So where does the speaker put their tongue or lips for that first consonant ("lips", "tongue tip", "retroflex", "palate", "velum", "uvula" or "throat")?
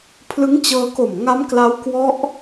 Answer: lips